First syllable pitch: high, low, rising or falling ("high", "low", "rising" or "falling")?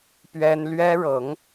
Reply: high